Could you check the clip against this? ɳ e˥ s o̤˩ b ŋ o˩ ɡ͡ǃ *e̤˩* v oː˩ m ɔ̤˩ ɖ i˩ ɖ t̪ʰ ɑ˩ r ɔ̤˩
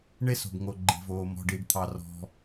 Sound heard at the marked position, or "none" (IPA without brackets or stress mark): i̤˩